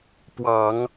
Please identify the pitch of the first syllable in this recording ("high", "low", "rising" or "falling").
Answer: low